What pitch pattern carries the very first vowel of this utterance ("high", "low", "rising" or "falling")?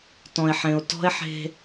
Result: low